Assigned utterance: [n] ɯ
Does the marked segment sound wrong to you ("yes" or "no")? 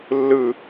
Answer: yes